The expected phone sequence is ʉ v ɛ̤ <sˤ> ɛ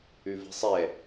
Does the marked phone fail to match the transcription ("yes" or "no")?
no